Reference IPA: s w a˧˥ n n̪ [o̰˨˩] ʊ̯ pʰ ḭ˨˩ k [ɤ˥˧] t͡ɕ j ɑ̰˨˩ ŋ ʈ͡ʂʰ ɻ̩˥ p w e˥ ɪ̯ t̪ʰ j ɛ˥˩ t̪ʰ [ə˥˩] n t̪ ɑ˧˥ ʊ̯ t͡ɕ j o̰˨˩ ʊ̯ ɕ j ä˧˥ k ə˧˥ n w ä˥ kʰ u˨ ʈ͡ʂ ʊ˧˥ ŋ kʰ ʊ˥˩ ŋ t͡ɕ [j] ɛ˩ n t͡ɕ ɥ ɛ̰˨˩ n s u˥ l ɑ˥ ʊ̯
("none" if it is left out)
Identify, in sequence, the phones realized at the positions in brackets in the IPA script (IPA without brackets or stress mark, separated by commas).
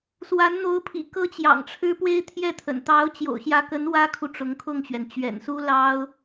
o˧˥, ɤ˥, ə̰˨˩, ɥ